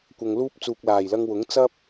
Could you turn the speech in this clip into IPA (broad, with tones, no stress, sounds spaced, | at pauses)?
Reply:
kʷ ɐ˧ ŋ l uː˥ p̚ t͡s uː˨ k̚ l aː˨˩ j l ɐ˧ ŋ w ʊ˨˥ ŋ t͡s ɐ˥ p̚